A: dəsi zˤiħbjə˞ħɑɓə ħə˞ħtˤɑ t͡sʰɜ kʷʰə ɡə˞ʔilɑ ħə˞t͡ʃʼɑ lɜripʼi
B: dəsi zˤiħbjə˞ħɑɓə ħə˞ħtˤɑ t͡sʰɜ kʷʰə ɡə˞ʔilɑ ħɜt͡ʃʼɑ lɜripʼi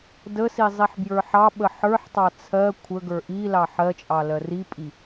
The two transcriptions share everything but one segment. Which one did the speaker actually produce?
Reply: B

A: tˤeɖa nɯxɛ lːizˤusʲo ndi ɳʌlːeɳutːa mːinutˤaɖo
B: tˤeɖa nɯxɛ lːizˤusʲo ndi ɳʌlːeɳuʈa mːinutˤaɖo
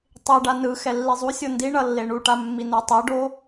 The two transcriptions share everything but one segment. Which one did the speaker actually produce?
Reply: B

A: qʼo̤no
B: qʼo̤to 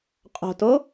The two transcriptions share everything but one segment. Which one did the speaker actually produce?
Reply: B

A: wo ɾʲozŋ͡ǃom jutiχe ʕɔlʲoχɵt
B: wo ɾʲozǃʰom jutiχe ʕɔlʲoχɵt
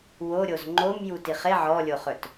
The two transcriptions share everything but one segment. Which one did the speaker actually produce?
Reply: A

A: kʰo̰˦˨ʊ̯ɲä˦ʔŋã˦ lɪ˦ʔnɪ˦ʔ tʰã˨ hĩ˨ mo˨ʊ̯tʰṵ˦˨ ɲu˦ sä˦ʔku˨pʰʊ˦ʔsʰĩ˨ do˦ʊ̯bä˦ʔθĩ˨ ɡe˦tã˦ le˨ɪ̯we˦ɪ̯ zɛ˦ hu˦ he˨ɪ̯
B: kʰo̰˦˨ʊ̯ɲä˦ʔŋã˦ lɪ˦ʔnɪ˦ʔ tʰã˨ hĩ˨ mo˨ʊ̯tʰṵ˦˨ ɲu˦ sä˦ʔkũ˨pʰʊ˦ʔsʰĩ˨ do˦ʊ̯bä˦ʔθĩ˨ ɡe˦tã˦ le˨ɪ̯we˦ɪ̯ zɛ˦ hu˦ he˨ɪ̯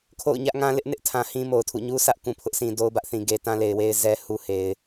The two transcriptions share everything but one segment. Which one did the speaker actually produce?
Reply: B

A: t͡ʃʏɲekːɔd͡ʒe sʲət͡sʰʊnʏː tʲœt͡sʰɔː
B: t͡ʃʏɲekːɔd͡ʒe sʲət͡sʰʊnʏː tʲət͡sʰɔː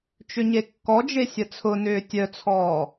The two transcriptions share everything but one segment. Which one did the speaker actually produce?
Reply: A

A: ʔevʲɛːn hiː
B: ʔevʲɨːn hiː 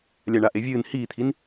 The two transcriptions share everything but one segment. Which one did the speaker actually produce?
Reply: B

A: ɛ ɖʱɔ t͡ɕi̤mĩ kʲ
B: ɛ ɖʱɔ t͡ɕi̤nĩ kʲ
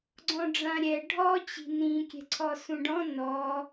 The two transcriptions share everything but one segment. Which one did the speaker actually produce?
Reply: B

